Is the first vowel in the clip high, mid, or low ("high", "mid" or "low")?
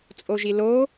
mid